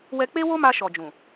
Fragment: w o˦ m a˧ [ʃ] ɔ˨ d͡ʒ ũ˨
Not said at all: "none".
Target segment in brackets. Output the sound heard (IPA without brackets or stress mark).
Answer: ʃ